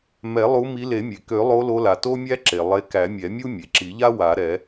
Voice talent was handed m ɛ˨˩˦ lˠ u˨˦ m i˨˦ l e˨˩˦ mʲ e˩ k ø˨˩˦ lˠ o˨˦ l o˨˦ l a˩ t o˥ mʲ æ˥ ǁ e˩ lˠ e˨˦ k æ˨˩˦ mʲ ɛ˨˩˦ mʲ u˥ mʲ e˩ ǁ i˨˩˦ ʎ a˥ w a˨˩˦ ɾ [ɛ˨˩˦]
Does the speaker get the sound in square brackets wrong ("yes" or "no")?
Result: no